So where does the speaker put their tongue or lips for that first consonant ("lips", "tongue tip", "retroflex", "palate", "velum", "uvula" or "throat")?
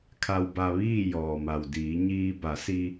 velum